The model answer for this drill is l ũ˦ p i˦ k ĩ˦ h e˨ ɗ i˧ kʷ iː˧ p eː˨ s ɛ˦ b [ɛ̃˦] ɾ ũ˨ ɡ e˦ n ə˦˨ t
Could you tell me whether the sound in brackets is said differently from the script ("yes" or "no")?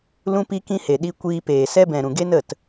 yes